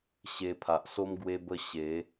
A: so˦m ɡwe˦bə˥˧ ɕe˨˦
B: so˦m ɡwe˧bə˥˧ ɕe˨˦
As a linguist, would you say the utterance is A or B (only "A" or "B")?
A